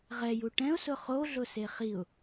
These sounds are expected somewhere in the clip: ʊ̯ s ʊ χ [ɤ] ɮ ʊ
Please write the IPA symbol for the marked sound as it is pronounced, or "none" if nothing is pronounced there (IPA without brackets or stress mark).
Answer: o